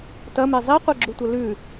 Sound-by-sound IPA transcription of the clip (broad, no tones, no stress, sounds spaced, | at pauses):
t ɐ m e zˤ i qʷ e ɡ͡ǁ u tʷ ɐ l ʉ